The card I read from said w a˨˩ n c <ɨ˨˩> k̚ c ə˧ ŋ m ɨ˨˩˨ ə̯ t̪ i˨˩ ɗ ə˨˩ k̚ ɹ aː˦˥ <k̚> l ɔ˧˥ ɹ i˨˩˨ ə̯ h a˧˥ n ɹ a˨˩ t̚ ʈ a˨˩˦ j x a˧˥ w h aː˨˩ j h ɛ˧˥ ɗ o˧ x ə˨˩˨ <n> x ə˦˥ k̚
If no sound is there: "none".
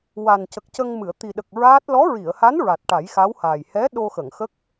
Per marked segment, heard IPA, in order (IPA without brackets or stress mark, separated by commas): ə˨˩, t̚, ŋ